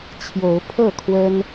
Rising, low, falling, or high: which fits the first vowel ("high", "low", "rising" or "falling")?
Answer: rising